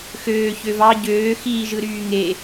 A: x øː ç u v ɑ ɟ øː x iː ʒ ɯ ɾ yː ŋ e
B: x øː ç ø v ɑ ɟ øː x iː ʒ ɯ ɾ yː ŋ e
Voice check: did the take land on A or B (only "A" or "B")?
B